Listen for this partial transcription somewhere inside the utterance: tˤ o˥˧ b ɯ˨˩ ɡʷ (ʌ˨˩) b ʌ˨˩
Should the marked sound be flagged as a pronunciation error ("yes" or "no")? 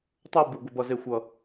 no